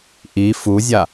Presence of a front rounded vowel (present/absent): absent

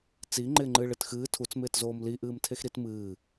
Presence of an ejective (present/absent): absent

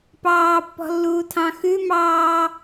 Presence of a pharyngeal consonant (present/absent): absent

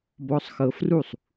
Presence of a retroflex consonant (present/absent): absent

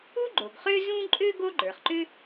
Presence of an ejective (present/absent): present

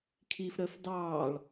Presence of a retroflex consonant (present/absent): present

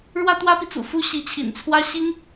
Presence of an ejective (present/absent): absent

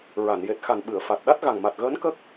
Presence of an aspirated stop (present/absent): absent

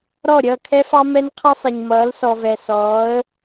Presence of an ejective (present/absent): absent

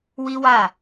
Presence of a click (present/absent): absent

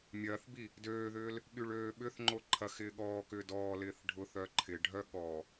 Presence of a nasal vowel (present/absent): absent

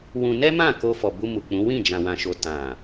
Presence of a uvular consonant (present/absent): absent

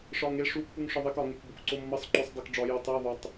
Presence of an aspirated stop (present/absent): absent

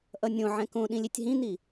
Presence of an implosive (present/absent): present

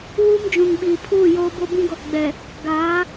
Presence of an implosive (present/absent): present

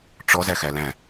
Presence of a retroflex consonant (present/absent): present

